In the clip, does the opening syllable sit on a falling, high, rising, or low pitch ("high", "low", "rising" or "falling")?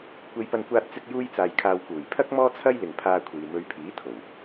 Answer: high